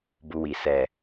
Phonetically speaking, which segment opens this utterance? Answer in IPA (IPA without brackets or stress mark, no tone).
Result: b